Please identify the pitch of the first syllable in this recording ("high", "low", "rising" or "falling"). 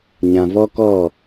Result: low